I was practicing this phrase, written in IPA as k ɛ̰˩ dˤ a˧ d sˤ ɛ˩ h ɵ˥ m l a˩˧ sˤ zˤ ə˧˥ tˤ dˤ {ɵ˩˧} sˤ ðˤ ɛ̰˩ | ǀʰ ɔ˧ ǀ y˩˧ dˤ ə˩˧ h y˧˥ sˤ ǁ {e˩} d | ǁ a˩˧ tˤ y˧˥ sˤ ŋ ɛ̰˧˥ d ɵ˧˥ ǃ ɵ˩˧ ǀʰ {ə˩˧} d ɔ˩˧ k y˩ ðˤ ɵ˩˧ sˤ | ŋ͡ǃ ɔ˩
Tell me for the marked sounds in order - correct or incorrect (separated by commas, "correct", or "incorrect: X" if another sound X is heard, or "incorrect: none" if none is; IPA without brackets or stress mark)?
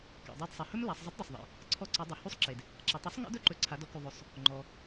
incorrect: ɵ˩, correct, incorrect: a˩˧